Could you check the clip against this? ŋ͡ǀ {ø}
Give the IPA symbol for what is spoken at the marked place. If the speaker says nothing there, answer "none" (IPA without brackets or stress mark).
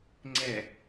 ɛ